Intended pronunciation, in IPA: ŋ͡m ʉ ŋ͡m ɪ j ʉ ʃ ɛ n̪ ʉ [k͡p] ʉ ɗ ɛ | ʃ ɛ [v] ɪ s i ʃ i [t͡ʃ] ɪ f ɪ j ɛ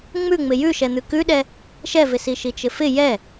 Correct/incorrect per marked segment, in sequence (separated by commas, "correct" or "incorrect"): incorrect, correct, correct